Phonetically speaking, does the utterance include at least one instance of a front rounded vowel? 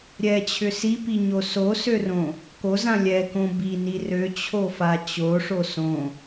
yes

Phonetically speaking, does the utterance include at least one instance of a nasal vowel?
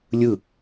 no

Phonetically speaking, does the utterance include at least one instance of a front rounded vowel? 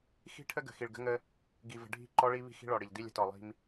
no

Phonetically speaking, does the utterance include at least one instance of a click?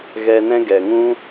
no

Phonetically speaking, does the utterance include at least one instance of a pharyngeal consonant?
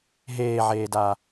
yes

